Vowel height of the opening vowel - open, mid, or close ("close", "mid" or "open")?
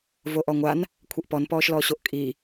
mid